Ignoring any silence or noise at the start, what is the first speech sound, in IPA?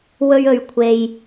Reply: w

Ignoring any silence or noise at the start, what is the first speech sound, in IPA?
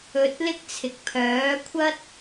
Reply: ɵ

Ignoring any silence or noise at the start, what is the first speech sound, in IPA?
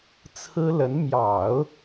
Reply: t͡sʰ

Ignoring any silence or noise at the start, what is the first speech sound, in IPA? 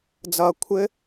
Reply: d͡z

